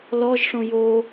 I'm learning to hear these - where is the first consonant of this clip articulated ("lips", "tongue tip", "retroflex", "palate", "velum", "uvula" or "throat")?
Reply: tongue tip